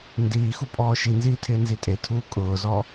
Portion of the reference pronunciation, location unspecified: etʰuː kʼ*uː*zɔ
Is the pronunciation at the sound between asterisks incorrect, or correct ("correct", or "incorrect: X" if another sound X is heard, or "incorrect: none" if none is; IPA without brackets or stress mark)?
incorrect: ʊː